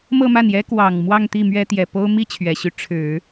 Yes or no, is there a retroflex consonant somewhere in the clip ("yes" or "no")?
yes